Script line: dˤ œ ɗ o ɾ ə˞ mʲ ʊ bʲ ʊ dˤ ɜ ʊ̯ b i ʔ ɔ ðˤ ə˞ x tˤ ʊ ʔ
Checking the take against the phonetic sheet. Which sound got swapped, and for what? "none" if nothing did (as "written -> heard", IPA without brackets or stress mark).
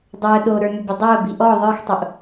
none